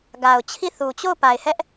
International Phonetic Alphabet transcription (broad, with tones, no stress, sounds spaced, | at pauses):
ɡ a˨ ʊ̯ t͡ɕʰ i˦˨ θ u˨ t͡ɕ o˦˨ ʊ̯ p a˨ ɪ̯ h ɛ˦ ʔ